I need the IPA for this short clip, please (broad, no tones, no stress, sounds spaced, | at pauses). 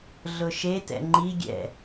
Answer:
ɮ ʊ ʃ e t ɛ̰ ŋ͡ǃ i ɡʲ ɛ̰